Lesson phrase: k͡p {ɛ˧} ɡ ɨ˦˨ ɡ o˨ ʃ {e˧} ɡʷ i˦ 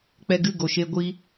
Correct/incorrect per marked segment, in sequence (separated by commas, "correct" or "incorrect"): correct, correct